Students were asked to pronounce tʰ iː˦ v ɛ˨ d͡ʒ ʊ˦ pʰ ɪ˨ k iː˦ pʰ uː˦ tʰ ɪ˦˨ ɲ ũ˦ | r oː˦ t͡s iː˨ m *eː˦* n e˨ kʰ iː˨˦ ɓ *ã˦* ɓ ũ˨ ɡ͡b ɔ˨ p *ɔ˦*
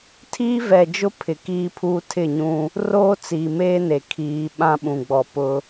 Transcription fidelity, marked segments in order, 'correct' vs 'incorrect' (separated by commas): correct, correct, incorrect